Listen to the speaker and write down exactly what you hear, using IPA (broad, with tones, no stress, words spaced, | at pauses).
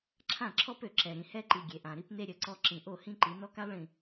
ǁʰã˦˨ǁʰɔ˦pø˨ǁɛ˨ ɾĩ˨hɛ˦ǃi˨ ɡʲe˨ʔã˨ɾi˦pne˦ ɾʲə˨˦ǀɔ˦ ǁĩ˨ʔo˦˨hĩ˦ǃi˨˦ nɔ˦ka˦lˠɭĩ˨